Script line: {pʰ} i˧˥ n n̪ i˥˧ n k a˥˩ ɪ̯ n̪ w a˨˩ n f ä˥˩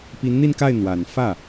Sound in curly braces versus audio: incorrect: p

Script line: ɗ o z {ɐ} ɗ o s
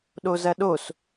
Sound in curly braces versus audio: correct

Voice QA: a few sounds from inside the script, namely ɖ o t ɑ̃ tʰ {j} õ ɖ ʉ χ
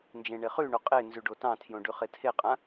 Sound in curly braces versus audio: correct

